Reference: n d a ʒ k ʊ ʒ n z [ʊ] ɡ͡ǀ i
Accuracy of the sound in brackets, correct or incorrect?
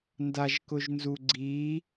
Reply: incorrect: u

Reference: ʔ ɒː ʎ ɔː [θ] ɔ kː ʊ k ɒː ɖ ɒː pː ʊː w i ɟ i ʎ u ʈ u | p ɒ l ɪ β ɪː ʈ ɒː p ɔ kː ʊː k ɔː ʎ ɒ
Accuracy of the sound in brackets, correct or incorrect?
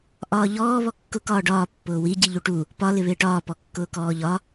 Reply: incorrect: β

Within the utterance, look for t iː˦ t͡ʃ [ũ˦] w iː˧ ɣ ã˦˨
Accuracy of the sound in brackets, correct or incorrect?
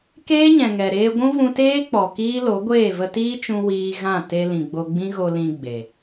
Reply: incorrect: ũ˧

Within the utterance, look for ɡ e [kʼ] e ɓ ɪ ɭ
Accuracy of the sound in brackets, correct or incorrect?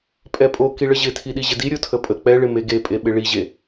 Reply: incorrect: pʼ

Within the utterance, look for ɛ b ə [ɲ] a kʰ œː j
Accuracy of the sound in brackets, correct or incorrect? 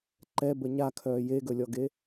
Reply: correct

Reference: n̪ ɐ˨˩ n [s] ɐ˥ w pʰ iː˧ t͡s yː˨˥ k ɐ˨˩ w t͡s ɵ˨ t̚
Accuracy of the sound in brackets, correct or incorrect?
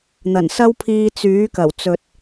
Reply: correct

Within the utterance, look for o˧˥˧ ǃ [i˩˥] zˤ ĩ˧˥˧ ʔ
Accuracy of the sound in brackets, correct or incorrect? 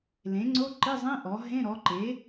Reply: incorrect: i˧˥˧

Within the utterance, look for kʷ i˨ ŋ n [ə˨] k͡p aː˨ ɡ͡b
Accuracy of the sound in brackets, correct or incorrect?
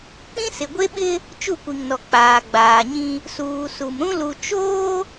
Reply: incorrect: ɔ˨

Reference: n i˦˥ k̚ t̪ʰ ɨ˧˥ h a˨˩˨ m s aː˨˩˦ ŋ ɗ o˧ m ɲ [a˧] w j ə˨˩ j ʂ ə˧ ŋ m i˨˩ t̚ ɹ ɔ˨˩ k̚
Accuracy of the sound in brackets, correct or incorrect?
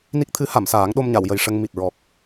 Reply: incorrect: a˨˩˨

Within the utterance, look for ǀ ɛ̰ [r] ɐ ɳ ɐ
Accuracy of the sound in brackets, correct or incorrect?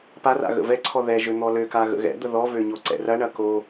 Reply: correct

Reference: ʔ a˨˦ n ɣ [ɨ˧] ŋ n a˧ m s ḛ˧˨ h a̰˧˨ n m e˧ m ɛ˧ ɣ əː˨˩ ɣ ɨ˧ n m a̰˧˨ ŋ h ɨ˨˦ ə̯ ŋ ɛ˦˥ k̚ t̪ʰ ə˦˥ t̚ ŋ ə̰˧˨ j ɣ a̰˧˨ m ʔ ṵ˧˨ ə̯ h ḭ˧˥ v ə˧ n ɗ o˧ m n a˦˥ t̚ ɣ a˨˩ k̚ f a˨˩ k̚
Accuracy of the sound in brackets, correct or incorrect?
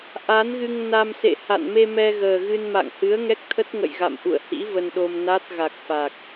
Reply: correct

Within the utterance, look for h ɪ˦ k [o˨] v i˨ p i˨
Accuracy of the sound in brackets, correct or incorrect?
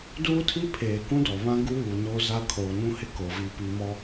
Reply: correct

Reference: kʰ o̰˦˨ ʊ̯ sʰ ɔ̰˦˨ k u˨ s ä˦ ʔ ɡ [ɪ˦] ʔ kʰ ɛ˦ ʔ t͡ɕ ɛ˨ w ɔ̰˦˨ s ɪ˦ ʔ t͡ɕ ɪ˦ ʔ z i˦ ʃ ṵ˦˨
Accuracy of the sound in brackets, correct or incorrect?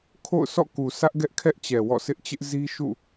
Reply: incorrect: ɛ˦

